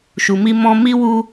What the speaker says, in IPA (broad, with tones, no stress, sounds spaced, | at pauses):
ʃ u˧ m i˦ m ɔ̃˦ m i˦ w u˦